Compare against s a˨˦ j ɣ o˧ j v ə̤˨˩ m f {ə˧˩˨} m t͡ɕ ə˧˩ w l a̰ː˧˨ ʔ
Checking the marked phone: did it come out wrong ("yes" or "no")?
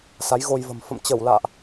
yes